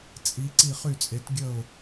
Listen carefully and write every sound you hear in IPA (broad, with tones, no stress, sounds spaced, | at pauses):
t͡sʼ i˩˥ ǀ i˥˩ χ y˥˩ t͡sʼ e˩˥ t ɡʲ ə˥˩ ʊ̯